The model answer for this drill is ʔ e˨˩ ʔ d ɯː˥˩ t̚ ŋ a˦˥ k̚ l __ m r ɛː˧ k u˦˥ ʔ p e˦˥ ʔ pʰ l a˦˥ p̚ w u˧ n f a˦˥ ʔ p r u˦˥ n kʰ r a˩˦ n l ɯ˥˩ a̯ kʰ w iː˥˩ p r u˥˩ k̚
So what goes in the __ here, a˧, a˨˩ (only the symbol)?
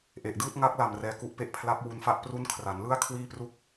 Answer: a˨˩